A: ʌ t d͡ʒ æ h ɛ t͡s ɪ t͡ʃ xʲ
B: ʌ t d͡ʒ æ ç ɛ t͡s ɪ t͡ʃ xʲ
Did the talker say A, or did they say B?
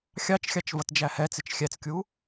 A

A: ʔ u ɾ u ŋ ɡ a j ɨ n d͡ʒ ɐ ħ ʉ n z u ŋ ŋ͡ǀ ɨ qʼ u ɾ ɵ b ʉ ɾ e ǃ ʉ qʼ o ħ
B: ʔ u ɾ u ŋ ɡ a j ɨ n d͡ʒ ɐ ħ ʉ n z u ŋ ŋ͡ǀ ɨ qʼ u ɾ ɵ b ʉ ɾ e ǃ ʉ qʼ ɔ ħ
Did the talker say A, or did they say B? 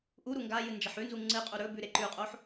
A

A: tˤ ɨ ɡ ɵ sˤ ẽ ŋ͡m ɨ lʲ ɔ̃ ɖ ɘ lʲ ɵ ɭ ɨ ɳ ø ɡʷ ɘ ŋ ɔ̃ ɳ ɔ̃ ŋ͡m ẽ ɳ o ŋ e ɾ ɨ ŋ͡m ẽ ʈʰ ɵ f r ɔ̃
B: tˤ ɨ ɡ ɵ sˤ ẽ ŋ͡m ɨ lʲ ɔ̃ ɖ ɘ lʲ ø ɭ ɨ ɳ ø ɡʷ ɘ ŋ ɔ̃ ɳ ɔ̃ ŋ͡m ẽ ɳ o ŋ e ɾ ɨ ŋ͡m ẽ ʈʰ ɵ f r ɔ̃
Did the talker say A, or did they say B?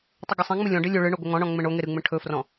A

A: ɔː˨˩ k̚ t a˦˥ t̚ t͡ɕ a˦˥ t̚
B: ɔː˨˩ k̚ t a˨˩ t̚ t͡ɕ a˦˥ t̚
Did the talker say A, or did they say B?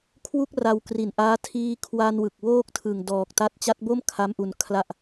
A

